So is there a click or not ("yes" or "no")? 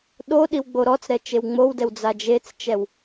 no